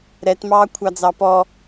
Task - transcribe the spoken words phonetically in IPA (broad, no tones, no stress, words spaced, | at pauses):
ɾɛtmɑːkʷʰɑd͡zɑ pɔ